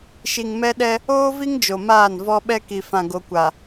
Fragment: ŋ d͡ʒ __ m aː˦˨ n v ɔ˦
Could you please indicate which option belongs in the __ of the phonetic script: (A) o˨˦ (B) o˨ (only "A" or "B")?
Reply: B